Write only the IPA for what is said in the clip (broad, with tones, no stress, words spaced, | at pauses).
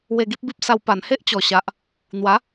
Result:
we˧ɡi˦p̚bi˦p̚sa˧w pa˨˩nhe˦ʔt͡ɕɔ˨˩ɕa˨ʔ | n̪wa˨˦